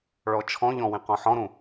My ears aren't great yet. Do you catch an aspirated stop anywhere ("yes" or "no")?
yes